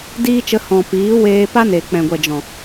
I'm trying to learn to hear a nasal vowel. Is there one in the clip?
yes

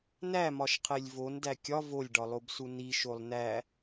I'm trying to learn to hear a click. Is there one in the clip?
no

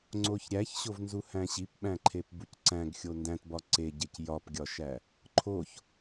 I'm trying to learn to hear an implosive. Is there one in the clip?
yes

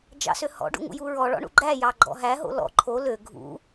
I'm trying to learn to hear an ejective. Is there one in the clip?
no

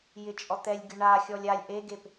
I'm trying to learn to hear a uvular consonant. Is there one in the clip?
no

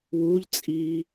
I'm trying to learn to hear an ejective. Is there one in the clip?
yes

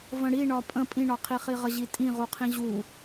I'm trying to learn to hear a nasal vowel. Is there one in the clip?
yes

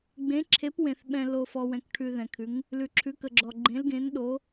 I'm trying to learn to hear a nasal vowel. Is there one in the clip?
yes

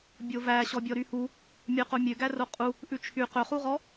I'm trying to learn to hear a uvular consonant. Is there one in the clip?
yes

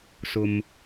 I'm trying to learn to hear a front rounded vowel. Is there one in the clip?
no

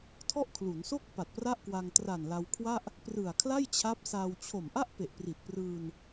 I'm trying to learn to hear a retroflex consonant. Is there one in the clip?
no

